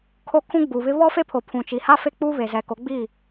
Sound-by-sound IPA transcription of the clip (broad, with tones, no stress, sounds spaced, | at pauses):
kʰ o˦ kʰ ũ˦ ɡ͡b uː˨ β ɪ˦ β ɔ˦ f e˦ pʰ o˨ pʰ ũ˨ t͡ʃ i˨ h a˦ f e˦ k͡p uː˦ β e˨ z ɛ˨ k o˨˦ ɡ͡b iː˦˨